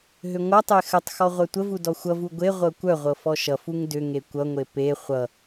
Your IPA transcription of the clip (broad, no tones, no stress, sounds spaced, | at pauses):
ɦ ʏ ŋʷ ʌ tˤ e x ə tˤ x ɔ ʁʷ œ tʷ ə v u d ɔ xʷ ʌ v u ɡʷ e ʁʷ ɤ kʷ œ ʁʷ ɤ f ɔ ʃ ʌ f u ŋ d ʏ ŋ e kʷ ʌ ŋʷ e p e χʷ ʌ